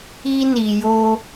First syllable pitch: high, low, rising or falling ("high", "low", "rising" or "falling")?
high